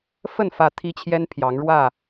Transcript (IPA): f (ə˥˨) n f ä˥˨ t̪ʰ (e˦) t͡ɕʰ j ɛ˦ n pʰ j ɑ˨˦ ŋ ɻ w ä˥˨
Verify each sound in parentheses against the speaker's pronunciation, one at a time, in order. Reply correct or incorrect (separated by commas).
correct, incorrect